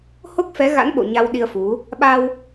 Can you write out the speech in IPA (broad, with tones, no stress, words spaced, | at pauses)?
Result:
ho˦˥k̚fɛ˨˦ ɣa̰˧˥nɓo̰˧˨ ɲa˧wɗi˧ə̯fu˨˦ | ɓa˧w